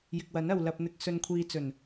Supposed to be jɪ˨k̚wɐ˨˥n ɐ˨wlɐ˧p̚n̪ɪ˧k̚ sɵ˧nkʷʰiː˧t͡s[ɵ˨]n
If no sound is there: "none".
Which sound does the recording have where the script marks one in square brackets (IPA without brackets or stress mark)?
ɵ˨˩